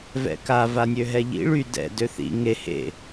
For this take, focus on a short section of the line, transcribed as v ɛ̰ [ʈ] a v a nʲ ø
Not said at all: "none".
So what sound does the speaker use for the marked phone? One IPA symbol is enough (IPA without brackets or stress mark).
k